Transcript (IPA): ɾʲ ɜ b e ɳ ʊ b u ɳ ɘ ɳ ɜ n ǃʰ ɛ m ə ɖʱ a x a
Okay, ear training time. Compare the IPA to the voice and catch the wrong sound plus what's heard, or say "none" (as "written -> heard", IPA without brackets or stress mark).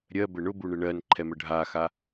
e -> ɘ